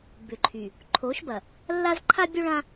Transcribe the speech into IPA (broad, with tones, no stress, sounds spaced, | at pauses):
b ʏ˨ ǃʰ y˨ | ǃʰ o˨˦ ʃ b ɐ˨ | lː a˦ z ǃʰ a˦ bʲ o˦ ɭ ã˦